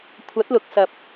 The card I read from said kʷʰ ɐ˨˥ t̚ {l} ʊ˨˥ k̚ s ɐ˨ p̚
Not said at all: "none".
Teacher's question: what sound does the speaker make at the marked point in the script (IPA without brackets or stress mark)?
l